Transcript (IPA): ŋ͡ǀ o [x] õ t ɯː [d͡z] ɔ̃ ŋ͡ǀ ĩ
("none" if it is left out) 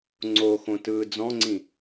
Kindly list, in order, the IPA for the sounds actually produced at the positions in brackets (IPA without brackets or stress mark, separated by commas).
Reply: x, d͡z